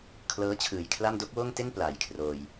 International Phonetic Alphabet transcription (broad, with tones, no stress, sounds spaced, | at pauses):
kʰ l ɤː˦˥ t͡ɕʰ ɯː˨˩ j kʰ l a˥˩ m d o˦˥ k̚ w oː˥˩ ŋ t e˥˩ n p l aː˩˦ j kʰ r oː˧ j